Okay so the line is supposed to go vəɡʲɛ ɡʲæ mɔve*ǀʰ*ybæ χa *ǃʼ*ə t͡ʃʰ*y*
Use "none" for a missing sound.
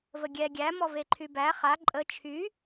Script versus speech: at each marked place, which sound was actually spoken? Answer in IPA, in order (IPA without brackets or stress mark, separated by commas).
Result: ǃʰ, ǃʼ, y